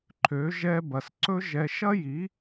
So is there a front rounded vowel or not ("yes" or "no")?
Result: yes